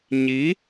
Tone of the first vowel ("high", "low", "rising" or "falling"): rising